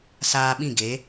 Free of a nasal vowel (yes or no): no